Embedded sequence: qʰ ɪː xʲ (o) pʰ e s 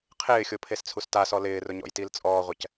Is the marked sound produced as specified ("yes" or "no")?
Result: yes